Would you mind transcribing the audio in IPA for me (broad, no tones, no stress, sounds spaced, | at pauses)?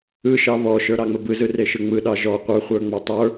ɯ ʃ ɑ β ɔ ʃ ə˞ ɾ ɑ ŋ͡m ə b ɯ z ɯ r e ʃ ɯ ŋ͡m ɯ ɗ ɑ ʒ ɔ qʷ ə˞ χʷ ə˞ ŋ͡m a tˤ ə˞